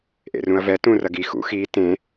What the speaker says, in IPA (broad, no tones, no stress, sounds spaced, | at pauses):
ʔ ḛ r ũ ɐ̯ v ɛ t ũ r ɐ ɡ i x ṵ x i t ẽ